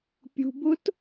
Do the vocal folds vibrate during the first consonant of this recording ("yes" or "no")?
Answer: no